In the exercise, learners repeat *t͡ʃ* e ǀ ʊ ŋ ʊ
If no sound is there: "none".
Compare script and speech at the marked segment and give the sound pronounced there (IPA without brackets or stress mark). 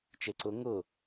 t͡ʃ